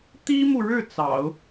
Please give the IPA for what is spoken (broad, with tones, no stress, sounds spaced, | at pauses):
t̪ i˥ m u˨ ɻ ɻ̩˥˩ t͡s ɑ̰˨˩˦ ʊ̯